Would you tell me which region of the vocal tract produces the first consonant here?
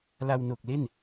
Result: tongue tip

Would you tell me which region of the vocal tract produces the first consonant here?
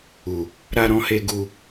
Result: tongue tip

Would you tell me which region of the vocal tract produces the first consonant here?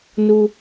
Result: tongue tip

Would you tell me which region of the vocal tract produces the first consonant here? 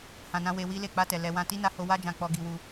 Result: throat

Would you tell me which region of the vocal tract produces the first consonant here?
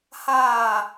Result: throat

